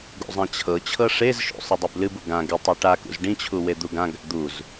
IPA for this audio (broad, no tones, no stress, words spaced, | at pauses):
ɡṵzˤãt͡ɕʰɤt͡ɕʰɤ ʂezʃṵ sˤɨdˤeblɨbu ɡã ɡɪ tˤɤʈakṵz ɖĩt͡ɕʰu wed̪uɡãɡa̰ d̪uz